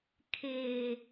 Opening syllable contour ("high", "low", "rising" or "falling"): low